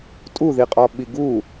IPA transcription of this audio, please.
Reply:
tʼ u ð i qʼ ɒ ɓ i ɡ u

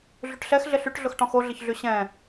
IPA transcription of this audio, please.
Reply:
ɮ y ʈ ɬ ɛ x ɮ ɪ ɬ y ʈ ɮ ʊ x ʈ ɔ̃ x o ɮ ɪ ç ɮ y ɕ ɛ̃

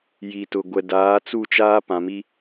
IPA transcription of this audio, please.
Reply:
j i˨ t ʊ˨ ɡʷ ɛ˨ d aː˨˦ t͡s u˦˨ t͡ʃ aː˦ p ã˨ m i˦

